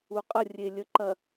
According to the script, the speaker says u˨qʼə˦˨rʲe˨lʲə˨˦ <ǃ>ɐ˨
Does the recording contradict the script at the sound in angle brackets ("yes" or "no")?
no